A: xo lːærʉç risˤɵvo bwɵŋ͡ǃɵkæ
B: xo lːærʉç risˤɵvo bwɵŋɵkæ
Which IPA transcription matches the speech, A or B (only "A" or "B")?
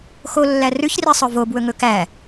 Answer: B